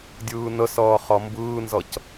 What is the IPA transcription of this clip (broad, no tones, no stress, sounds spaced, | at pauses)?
dʲ ɯː n ə s ʌː χ ʌ m b ɯː n z ʌ c